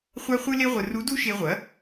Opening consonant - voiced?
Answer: no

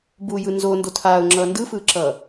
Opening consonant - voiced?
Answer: yes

